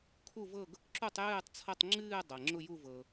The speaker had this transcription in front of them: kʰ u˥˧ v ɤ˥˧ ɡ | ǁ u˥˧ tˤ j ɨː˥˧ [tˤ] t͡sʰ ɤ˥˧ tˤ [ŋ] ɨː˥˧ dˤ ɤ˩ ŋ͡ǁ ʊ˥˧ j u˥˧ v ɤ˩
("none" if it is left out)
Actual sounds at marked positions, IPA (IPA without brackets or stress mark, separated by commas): tˤ, ŋ͡ǁ